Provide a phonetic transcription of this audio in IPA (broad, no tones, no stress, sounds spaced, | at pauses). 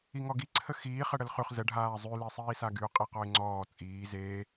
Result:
i ŋ ɔ ɡ i ǀʰ ə x iː χ ə ɽ ə l χ y χ z ə ɖʱ aː zˤ y l e sˤ iː s a ɡ y ʊ̯ qʼ i q ɔ ɪ̯ ŋ͡ǀ ɔː t͡sʼ iː z eː